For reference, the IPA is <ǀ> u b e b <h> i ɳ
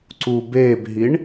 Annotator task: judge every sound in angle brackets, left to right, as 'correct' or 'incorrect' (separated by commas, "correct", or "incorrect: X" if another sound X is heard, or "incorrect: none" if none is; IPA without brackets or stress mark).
correct, incorrect: ɦ